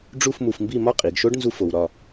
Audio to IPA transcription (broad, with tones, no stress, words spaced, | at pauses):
ɖ͡ʐu˥˧fmu˧fmbi˥˧mɒ˥ qʼi˩˧ɡʃo˥ɖ nzu˥fo˧wɾɒ˥˧